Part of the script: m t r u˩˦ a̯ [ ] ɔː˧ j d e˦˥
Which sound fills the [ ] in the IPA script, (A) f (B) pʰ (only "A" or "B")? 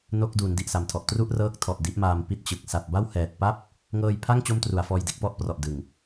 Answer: A